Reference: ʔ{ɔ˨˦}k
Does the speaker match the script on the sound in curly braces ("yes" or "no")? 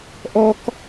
no